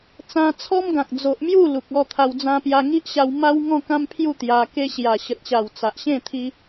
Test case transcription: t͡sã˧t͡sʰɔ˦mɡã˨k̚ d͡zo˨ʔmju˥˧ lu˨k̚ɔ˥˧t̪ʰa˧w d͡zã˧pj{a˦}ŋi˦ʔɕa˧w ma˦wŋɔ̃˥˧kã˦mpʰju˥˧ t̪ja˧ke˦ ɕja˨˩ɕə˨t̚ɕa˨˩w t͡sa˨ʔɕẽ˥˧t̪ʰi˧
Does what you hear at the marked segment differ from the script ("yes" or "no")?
yes